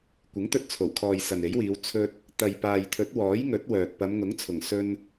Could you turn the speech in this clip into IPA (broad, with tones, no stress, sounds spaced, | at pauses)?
kʷ ɪ˨˥ ŋ t̪ ɵ˧ t̚ t͡sʰ o˨˩ w kʰ ɔː˨ j s ɐ˨ n e˨˥ j w iː˨˧ w t͡sʰ ɵ˧ t̚ | t̪ ɐ˨ j p aː˨ j t̪ʰ ɵ˨˥ t̚ w ɔː˨˥ j ŋ ɵ˨˥ t̚ w œː˨ t̚ p ɐ˨˧ m ŋ ʊ˨˥ ŋ t͡sʰ ʊ˨˩ ŋ s ɵ˧ n